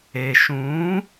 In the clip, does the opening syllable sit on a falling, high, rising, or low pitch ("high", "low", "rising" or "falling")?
low